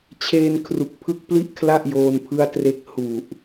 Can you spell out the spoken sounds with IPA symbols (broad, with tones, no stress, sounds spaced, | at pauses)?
t͡ɕʰ eː˧ n kʰ r u˨˩ k̚ pʰ ɯ˦˥ k̚ p l i˥˩ ʔ kʰ l a˥˩ ʔ j oː˧ n pʰ ɯ˦˥ a̯ t r e˦˥ k̚ h u˨˩ ʔ